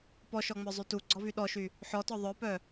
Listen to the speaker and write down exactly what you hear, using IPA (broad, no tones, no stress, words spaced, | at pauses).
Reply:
pɔʃɔŋ͡mœzˤy tuɡ͡ǀɔvy ɗɔʃy | ħɔtɔ ðˤœpœ